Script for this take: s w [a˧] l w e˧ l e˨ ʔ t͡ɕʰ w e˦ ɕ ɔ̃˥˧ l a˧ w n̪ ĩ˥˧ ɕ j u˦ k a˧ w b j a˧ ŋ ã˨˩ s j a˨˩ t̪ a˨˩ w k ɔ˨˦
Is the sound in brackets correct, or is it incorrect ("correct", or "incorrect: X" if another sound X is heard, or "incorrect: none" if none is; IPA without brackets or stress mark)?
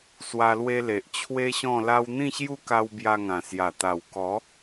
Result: correct